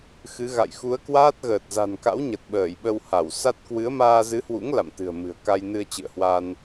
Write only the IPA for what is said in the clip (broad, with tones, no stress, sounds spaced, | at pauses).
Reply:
x ɨ˨˦ ɣ a̰˧˨ j x u˨˦ ə̯ k w aː˦˥ t̚ ɣ əː˨˩ t̚ z a̤˨˩ n k a̰˧˥ w ɲ ə˨˩ t̚ ɓ əː˧˩ j ɓ ə˧ w h a˧˩ w s a˦˥ t̚ k w ɨ˨˦ ə̯ m aː˧ z ɨ˨˦ h w ṵ˧˥ ŋ l a̰˧˨ m t̪ ɨ̤˨˩ ə̯ m ɨ̤˨˩ ə̯ k a˧ j n ɨ˧ ə̯ t͡ɕ ɨ̰˧˨ ə̯ h w a˧ n